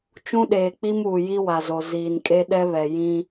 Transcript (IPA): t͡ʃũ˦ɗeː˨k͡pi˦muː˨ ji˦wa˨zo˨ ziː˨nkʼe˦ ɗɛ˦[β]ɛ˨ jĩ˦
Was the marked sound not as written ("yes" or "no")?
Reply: no